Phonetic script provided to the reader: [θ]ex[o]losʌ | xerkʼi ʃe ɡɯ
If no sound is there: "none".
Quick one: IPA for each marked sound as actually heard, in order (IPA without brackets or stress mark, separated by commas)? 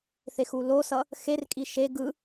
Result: θ, u